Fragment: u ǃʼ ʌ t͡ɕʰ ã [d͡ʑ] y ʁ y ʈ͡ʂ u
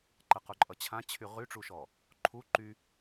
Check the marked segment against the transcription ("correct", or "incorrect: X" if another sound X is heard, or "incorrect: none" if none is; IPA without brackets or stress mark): incorrect: t͡ɕʰ